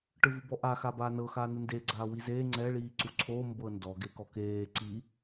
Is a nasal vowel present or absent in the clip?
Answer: absent